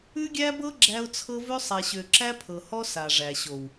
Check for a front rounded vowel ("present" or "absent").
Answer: present